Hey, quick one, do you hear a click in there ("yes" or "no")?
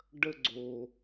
yes